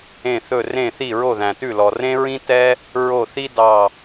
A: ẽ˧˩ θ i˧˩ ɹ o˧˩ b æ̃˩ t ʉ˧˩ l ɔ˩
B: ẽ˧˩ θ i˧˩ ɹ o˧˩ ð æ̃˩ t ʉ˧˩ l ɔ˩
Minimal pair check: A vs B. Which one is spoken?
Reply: B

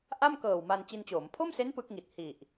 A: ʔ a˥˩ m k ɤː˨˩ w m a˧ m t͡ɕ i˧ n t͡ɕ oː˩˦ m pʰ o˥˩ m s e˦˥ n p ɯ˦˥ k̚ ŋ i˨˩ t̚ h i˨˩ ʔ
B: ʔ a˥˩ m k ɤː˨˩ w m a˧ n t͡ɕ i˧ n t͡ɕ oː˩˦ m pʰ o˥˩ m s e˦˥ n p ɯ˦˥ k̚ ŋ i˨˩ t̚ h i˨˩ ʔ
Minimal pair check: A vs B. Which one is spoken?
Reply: B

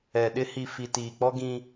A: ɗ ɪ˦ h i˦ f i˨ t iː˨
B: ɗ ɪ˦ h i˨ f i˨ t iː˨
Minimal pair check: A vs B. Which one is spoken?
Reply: B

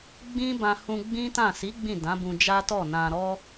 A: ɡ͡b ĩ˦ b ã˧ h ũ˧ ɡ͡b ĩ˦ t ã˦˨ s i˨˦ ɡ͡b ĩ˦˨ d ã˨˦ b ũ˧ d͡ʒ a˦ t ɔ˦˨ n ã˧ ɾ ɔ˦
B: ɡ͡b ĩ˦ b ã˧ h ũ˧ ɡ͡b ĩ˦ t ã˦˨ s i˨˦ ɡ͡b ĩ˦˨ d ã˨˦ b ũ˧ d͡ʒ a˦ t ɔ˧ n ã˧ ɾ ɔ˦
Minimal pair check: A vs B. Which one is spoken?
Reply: A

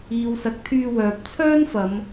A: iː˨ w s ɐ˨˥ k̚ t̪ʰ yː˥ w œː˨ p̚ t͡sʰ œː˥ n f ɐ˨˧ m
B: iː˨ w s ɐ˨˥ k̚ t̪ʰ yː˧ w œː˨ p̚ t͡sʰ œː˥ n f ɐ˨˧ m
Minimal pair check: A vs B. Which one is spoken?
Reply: B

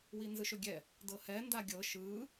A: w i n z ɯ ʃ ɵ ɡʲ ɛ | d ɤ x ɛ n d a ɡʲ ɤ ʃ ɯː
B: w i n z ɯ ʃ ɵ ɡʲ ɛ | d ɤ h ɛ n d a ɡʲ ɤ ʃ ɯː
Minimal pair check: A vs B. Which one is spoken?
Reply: B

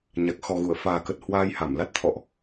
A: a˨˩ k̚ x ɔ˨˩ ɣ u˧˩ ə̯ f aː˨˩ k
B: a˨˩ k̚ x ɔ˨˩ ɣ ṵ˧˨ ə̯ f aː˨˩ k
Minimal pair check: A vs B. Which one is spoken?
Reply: A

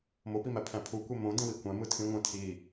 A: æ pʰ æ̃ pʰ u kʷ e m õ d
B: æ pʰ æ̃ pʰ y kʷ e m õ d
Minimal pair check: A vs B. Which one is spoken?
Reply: A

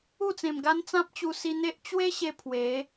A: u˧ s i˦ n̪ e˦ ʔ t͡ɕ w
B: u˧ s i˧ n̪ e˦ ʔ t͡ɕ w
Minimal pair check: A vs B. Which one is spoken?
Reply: B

